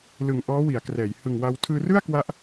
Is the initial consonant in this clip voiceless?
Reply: no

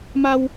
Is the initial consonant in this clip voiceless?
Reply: no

